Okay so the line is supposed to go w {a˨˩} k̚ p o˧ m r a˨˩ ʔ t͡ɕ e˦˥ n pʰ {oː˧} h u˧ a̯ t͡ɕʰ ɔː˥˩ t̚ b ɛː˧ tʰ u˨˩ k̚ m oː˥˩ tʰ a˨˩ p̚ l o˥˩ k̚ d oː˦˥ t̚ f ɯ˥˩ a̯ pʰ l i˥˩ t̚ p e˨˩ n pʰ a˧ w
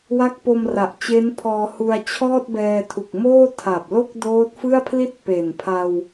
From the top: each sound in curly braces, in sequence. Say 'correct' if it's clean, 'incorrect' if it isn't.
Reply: incorrect: a˦˥, incorrect: ɔː˧

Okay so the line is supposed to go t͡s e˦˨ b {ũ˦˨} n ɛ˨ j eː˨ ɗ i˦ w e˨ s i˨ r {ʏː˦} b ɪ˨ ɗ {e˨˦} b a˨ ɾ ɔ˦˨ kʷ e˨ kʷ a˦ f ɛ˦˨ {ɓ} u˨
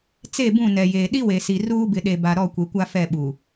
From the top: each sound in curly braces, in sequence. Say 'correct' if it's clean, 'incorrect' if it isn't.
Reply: correct, incorrect: uː˦, incorrect: e˨, correct

